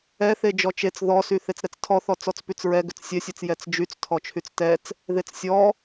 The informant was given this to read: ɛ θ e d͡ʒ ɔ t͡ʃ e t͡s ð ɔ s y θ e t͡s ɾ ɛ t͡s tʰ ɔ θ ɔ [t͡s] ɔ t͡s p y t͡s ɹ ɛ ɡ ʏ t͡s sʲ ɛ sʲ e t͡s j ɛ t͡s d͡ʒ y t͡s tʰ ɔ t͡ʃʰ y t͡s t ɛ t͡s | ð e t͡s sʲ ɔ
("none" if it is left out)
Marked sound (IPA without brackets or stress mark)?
t͡s